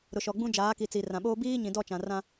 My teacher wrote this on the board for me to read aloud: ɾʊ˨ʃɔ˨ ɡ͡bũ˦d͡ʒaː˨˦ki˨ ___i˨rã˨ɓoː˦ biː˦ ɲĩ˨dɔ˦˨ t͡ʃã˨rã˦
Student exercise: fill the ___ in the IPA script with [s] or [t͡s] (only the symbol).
t͡s